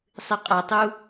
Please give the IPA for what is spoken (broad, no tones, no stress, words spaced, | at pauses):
sˤɨqʼatˤu